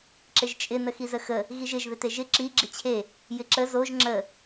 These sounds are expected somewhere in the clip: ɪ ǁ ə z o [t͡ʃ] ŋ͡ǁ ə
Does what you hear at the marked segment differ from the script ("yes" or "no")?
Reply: yes